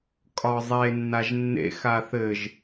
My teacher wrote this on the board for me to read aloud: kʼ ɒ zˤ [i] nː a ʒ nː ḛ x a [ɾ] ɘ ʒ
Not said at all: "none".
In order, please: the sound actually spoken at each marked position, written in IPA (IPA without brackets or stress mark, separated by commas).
e, θ